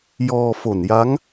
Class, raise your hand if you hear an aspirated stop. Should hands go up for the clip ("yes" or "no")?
no